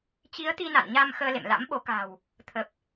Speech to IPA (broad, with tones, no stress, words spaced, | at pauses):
t͡ɕi˨˦ə̯t̪i˧na̰˧˨n ɲa˧m xəː˧lḛ˧˨mla̰˧˥mɓo˨˦ ka̤˨˩w | t̪ʰə˨˩p̚